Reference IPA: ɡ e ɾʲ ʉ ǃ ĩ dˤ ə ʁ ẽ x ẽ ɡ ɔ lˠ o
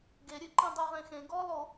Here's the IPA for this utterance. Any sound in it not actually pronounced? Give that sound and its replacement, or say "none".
ə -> ʉ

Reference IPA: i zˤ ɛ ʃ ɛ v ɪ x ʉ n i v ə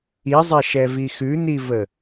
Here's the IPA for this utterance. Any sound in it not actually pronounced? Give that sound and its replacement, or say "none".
ɪ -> i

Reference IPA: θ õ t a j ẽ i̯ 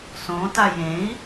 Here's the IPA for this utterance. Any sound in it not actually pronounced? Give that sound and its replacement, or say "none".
θ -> s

